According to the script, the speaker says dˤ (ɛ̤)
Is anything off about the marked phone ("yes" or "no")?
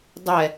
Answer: yes